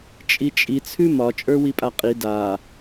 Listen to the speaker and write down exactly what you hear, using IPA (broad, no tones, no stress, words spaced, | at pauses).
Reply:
t͡ʃʼit͡ʃʼi t͡sʰʉmɒ t͡ʃʼə˞wipʼaqʼi da